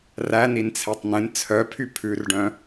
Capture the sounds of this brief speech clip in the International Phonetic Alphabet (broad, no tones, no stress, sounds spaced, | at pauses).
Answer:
r æ n i n t͡sʰ ɛ tˤ n ẽ n t͡sʰ œ pʰ y pʰ ʉ r ɖ œ̃